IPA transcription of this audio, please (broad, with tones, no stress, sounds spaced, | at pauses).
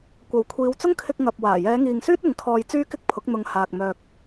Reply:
kʷ ɐ˨˥ w kʷʰ iː˨˧ w t͡s ʊ˥ ŋ kʰ ɪ˧ k̚ ŋ ɐ˨ p̚ w aː˨˩ j ɛː˨˧ ŋ iː˨ ŋ s yː˥ t̚ ɪ˨˧ ŋ kʰ ɔː˧ j t͡s yː˥ k ɪ˥ k̚ pʰ ʊ˨˥ k̚ n̪ ʊ˨˧ ŋ h aː˨ k̚ m œː˨ k̚